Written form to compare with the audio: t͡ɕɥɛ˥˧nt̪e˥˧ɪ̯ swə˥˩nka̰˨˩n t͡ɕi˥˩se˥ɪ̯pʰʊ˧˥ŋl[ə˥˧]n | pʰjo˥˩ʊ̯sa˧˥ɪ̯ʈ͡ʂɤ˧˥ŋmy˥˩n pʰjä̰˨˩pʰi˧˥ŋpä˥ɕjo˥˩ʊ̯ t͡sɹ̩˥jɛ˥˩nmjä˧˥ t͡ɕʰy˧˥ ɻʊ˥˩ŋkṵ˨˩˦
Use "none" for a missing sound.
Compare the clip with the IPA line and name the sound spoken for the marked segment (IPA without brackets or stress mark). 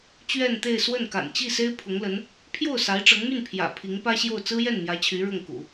ə˧˥